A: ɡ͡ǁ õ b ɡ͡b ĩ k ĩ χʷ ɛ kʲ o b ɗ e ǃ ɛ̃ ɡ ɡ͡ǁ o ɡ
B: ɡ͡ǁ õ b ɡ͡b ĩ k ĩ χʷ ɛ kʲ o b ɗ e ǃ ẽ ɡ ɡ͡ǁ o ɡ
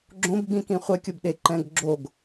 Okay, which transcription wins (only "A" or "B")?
A